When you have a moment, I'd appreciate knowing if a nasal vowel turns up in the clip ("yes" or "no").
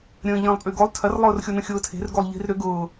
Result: yes